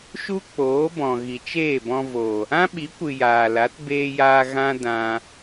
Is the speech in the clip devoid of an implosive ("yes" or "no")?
no